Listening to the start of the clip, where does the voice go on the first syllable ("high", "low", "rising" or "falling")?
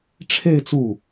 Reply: falling